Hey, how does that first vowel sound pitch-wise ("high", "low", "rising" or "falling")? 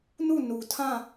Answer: falling